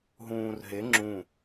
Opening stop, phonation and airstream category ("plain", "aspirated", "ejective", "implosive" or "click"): click